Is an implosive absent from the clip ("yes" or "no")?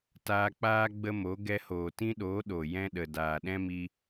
no